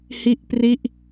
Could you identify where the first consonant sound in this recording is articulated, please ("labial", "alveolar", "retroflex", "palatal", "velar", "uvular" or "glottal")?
glottal